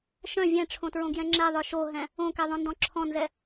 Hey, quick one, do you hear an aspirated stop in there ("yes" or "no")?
yes